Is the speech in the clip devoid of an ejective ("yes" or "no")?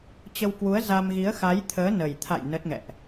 yes